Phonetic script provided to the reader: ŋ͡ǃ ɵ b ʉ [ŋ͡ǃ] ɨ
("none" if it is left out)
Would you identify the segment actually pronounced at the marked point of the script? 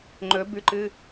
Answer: ǃ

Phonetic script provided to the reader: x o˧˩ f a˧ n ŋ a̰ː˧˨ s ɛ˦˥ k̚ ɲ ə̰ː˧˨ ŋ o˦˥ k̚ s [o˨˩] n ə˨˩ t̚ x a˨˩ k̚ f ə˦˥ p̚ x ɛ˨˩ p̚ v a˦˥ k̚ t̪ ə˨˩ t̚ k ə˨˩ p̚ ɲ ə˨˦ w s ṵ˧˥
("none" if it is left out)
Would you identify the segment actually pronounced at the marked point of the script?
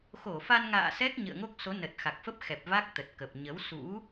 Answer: o˨˦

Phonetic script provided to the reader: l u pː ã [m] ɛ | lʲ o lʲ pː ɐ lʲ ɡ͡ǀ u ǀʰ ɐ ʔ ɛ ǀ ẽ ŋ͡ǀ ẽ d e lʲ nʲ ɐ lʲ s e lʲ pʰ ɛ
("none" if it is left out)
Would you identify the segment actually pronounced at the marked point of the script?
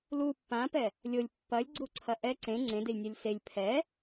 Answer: p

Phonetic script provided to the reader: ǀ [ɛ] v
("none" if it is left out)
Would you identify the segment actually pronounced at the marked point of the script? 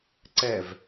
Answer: ɛ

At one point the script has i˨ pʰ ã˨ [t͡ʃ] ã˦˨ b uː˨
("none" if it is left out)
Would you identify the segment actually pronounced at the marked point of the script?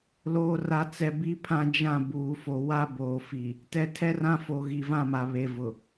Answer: d͡ʒ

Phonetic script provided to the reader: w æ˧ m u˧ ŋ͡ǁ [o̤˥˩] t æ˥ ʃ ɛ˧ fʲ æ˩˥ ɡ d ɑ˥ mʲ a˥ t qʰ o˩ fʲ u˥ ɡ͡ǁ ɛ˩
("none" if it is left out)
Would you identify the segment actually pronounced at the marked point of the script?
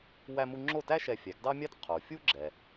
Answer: o˥˩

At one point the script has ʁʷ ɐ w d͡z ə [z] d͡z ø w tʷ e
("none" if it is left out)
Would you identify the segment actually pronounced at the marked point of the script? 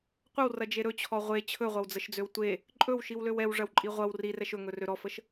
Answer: ʃ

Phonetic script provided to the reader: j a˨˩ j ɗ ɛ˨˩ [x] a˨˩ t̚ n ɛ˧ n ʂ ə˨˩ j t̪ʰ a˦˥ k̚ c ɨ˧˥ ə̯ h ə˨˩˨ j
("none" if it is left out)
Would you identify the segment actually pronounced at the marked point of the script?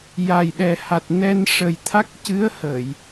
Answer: h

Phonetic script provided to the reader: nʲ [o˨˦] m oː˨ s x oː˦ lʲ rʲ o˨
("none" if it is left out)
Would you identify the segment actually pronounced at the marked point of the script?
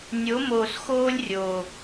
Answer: o˨˦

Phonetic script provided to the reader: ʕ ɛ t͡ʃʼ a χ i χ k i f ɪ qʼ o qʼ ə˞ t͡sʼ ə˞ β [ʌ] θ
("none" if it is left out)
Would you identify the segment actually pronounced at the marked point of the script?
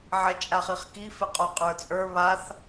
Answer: a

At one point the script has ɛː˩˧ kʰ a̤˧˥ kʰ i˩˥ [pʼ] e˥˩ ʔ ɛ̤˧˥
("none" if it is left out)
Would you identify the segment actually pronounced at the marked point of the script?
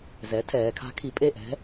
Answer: pʼ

